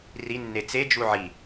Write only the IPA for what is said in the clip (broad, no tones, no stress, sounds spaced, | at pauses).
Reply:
r i nː e t͡s e d͡ʒ u ʕ i